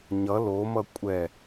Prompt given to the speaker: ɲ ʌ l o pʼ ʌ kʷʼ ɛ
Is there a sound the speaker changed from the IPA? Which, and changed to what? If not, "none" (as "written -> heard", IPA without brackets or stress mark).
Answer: pʼ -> m